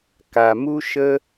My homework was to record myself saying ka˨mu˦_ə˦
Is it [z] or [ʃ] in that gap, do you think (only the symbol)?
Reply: ʃ